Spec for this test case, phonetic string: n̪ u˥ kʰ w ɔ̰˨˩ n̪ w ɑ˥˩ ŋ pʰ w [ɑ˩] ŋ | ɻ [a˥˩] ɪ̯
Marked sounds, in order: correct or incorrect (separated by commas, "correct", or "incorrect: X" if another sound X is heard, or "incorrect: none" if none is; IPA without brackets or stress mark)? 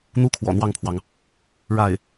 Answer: correct, correct